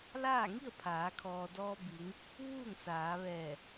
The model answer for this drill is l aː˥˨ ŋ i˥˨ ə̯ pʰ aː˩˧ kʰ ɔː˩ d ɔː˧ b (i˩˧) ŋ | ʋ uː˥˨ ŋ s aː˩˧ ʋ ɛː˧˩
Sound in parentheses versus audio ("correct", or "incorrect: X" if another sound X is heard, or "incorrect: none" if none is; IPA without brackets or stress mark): correct